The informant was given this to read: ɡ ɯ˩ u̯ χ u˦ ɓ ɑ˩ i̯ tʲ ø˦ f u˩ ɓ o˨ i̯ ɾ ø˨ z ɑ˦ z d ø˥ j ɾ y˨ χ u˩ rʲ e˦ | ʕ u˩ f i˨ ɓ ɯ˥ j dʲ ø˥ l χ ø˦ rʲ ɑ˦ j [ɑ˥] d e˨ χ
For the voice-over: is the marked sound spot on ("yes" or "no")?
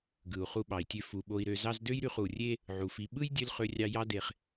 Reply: yes